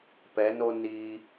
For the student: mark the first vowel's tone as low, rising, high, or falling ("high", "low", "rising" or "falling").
rising